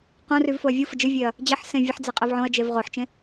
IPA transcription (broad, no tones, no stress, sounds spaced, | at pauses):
q õ r y v f o ɐ̯ vʲ u f ə d͡ʒ ɨ vʲ e ɐ̯ | d͡ʑ ə ħ s ẽ vʲ ə ħ d͡z e qʼ e v ʕ õ ɐ̯ d͡ʒ e v ʁ o ħ t͡ʃ ẽ